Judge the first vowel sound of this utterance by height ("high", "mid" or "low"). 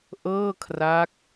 mid